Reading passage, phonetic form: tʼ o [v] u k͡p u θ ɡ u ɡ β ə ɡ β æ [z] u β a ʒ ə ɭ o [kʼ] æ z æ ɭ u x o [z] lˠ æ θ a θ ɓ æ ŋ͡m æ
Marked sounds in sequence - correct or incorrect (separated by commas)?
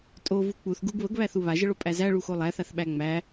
correct, incorrect, incorrect, incorrect